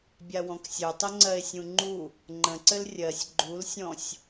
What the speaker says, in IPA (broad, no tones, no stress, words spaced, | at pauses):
bʲawɔ̃ksʲœtˤɘ ŋ͡ǀɜe̯sʲũŋ͡ǃu | ŋ͡ǃə̃ǀɘl rʲɜsʲ ɡ͡ǃulsʲɔ̃sʲ